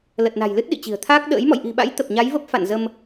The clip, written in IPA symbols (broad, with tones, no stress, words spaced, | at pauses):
lə˨˩t̚na̤˨˩j lɨ˦˥t̚ ɗḭ˧˨t͡ɕi̤˨˩ə̯t̪ʰaː˦˥k̚ ɗə̰ː˧˥j mɔ̰˧˨jʔi̤˨˩ɓa̰˧˥j t̪ə˨˩p̚ɲa˨˦jvə˦˥p̚ fa̰˧˨nzə˧m